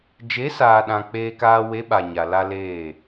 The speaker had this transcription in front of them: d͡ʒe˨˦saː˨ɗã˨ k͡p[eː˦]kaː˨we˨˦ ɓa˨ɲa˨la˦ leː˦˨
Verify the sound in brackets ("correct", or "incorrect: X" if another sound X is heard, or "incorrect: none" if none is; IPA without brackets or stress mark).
incorrect: eː˨